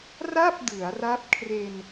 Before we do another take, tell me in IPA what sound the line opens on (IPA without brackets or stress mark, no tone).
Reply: r